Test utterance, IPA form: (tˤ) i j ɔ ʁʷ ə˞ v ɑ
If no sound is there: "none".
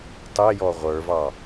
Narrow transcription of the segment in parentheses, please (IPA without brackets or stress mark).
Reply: tˤ